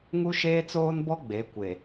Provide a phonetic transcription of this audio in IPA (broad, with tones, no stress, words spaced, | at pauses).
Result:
ŋu˦ʃeː˦t͡soː˦nbɔ˦ ɡ͡be˨˦kʷe˨